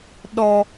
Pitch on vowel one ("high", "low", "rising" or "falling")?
low